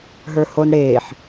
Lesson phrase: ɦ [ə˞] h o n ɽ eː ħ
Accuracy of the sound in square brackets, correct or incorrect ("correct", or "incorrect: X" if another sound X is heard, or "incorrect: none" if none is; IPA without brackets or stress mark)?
correct